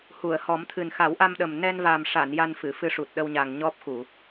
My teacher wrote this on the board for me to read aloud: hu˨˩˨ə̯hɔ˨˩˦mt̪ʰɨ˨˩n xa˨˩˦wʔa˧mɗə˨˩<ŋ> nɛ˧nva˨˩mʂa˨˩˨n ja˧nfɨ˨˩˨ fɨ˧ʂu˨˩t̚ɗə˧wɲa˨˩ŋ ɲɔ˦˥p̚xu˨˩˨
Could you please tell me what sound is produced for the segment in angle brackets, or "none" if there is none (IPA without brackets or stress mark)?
m